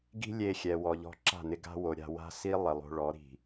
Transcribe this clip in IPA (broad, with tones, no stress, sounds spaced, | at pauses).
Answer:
ɡ i̤˦ lʲ e˧ xʲ ɛ˧ w ɔ˧ ʎ ɔ̤˦ ǁ a̤˦˨ n ɪ˧ ɡ a̤˦ w o˧ ɾʲ a̤˧ w a̤˦ s i˦ lˠ i˨ lˠ o̤˧ ɭ ɔ˨˦ ɾ i̤˨